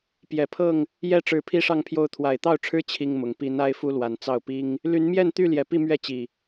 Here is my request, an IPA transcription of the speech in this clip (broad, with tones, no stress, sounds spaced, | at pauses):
p j ɛ˨˩ pʰ ɤ˥˨ ŋ | j ɛ˦ ʈ͡ʂ ɻ̩˨˦ pʰ i˦ ʂ ɑ˥˨ ŋ pʰ j o˦ ʊ̯ t̪ʰ w a˨˩ ɪ̯ t̪ ɑ˥˨ ʊ̯ ʈ͡ʂʰ ɻ̩˦ t͡ɕʰ i˦ ŋ m ʊ˨˦ ŋ p i˨˦ n a˦ ɪ̯ f u˦ l w a˨˦ n t͡s ɑ˥˨ ʊ̯ p i˦ ŋ | l y˨˦ n m j ɛ˥˨ n t̪ y˥˨ l j ɛ˨˩ p i˥˨ m ɥ ɛ˥˨ t͡ɕ i˨˩